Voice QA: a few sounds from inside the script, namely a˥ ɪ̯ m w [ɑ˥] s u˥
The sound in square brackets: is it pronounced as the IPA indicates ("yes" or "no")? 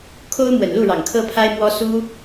no